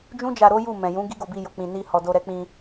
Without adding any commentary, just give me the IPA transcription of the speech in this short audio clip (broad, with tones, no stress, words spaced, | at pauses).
d͡ʒũ˦d͡ʒa˧ ɾo˦ju˦˨ mɛ̃˨jũ˨˦ ɡi˦ɡo˧bi˧ jo˨k͡pĩ˨ ni˧hɔ˨do˧ ɾɛ˧k͡pĩ˧